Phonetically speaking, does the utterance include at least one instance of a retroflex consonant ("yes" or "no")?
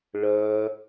yes